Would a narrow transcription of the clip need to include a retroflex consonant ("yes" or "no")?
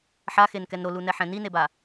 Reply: no